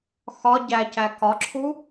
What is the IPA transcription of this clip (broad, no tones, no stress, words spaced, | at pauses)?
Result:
xɒ ɟæcæ kɒǁʰu